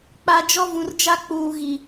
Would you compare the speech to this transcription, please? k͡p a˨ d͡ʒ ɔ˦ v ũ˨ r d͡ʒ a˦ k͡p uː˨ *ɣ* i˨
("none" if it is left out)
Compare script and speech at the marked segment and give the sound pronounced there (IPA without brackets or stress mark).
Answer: ɣ